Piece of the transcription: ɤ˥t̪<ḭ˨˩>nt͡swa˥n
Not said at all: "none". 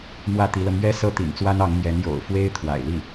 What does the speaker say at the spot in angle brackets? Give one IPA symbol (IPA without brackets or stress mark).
ḭ˨˩